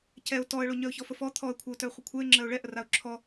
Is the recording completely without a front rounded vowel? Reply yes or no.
no